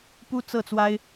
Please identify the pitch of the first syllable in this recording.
high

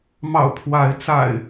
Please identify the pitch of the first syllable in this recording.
low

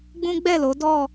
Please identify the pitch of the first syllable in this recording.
high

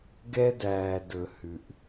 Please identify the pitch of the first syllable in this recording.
high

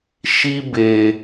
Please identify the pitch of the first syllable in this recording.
high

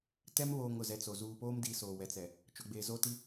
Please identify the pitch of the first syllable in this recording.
high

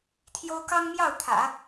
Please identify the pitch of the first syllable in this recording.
high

